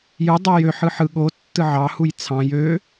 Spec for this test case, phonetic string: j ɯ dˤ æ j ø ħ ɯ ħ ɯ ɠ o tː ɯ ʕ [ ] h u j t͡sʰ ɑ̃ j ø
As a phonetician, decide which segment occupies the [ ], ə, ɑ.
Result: ɑ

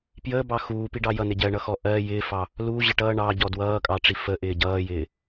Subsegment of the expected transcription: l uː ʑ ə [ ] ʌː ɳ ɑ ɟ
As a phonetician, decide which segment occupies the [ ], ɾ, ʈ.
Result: ʈ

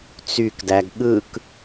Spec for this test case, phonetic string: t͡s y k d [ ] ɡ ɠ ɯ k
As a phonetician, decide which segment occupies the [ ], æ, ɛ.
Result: æ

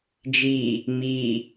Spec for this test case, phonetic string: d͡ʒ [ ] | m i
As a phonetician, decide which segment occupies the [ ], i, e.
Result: i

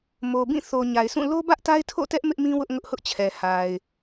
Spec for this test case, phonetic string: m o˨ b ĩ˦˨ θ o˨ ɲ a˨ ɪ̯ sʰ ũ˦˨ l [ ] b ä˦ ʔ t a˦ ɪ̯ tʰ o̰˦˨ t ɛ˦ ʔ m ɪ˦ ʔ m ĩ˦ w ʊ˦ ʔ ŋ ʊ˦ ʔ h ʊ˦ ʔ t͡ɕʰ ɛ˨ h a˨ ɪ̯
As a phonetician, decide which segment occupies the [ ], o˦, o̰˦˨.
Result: o˦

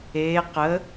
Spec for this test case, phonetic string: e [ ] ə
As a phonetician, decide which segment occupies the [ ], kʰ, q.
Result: q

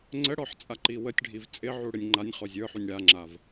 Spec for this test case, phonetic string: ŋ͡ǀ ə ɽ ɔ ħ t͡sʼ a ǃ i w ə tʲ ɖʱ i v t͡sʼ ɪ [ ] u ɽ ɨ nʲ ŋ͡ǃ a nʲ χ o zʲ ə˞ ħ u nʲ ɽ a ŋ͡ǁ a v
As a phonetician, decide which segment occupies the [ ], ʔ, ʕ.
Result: ʕ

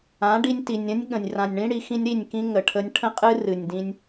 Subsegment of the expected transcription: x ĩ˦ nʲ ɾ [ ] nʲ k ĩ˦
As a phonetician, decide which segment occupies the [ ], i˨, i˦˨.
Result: i˦˨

